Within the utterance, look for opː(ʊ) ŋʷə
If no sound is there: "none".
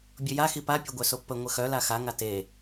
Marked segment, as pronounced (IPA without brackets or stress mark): ə